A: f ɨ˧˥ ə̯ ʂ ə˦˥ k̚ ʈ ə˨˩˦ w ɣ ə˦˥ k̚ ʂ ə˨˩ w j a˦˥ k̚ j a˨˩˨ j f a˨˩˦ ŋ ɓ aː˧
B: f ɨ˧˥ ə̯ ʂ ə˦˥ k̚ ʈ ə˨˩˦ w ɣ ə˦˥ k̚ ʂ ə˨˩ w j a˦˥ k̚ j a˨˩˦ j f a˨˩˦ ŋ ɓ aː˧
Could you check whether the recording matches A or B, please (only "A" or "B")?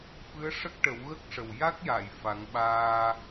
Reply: A